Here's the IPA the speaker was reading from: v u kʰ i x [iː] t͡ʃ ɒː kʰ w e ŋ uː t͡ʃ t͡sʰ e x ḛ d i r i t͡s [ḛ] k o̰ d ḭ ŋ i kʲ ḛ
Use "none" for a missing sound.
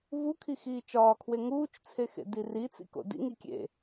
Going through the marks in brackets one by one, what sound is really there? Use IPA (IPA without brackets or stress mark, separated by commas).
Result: iː, ḭ